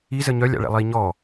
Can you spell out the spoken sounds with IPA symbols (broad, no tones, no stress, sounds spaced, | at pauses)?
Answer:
i z ə ɲ œ lʲ a̰ ɭ ɛ̰ lˠ i ɲ ɔ